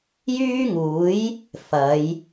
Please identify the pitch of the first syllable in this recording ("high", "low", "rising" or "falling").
high